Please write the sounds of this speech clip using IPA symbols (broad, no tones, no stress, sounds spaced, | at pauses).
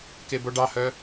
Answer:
k e b o ɖ ɑ h œ